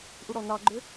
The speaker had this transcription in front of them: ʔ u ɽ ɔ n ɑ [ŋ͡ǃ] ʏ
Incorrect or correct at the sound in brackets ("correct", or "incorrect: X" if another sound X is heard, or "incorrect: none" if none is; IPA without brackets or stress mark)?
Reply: incorrect: ɡ͡ǃ